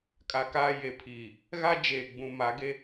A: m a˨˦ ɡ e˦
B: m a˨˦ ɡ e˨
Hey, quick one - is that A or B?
A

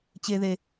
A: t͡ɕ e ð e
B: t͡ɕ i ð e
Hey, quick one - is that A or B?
A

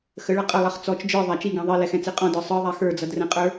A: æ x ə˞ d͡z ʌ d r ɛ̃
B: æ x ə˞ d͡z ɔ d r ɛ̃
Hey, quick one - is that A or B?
A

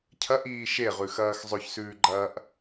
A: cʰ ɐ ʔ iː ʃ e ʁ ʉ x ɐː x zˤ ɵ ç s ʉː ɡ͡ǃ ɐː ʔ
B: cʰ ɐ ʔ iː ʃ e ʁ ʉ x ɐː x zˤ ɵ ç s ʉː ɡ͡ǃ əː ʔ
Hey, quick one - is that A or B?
A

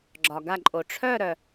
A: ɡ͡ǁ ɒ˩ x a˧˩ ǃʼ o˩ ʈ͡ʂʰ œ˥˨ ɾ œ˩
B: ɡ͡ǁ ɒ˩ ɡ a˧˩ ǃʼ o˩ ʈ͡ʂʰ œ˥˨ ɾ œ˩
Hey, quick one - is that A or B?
B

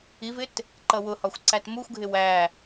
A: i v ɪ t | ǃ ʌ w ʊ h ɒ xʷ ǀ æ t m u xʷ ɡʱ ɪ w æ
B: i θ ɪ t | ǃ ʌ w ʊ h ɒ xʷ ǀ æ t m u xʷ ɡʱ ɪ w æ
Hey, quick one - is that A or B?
A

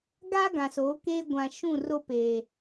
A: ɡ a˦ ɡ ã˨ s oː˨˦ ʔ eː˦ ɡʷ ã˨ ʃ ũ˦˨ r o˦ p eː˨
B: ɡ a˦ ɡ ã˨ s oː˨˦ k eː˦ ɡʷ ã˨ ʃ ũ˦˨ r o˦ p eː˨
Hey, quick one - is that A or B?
B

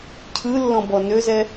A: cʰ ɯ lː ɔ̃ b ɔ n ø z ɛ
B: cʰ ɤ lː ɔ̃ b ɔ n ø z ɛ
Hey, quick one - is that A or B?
A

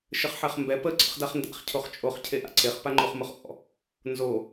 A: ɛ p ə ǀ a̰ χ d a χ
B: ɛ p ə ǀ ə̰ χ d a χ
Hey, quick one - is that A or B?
B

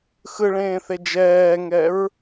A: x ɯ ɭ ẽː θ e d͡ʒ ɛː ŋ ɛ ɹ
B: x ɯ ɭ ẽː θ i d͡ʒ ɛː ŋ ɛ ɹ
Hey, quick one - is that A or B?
A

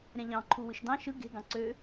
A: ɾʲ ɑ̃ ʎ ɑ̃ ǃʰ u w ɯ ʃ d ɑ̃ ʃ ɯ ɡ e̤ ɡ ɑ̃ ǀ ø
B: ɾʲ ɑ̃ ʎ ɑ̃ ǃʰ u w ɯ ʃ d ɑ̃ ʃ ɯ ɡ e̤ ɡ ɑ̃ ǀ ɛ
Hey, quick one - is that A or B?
A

